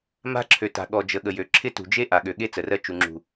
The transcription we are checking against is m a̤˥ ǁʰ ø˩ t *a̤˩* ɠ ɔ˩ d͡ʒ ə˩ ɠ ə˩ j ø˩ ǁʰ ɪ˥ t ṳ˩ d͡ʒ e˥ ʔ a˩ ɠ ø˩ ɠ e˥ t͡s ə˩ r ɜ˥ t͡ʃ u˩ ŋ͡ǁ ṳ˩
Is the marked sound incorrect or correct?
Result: correct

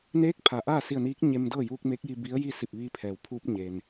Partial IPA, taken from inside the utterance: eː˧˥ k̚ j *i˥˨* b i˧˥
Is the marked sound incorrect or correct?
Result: incorrect: i˧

